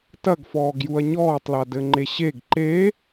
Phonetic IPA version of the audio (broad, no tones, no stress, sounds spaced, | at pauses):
t ɐ ɡ f ɔː ɡ j u ɐ̯ ɲ ɔː tˤ l a d ɘ ŋ͡ǃ e ɕ e ɡ ǃ e